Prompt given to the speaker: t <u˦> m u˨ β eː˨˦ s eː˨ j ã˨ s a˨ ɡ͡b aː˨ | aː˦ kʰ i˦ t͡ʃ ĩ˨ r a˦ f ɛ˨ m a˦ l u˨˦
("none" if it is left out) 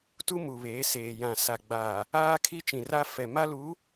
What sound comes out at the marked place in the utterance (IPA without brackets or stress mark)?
u˦